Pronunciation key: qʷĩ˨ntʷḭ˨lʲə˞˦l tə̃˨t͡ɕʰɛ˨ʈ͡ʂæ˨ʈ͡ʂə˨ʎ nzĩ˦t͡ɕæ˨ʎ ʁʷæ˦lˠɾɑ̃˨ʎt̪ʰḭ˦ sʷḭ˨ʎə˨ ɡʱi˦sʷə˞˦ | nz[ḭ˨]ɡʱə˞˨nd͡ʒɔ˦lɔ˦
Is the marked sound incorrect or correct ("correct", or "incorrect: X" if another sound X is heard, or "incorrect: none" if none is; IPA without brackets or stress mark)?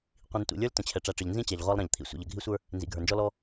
correct